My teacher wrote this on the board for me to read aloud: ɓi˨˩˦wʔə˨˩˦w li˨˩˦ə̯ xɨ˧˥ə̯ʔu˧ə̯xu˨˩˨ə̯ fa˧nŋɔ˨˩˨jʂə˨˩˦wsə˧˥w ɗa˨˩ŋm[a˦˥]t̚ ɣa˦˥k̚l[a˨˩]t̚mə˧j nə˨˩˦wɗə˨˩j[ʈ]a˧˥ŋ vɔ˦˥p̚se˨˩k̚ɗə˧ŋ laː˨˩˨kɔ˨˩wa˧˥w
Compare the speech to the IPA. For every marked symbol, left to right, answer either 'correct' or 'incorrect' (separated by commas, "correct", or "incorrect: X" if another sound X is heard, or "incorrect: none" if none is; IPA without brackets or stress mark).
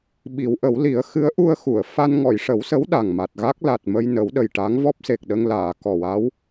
incorrect: a˨˩, correct, correct